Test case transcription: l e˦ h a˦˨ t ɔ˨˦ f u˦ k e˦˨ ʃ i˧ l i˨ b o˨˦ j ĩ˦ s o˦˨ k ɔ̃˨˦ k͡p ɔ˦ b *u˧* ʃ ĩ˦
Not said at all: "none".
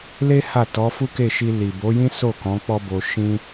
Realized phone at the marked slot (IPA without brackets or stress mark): o˧